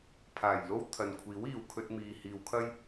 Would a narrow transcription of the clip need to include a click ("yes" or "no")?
no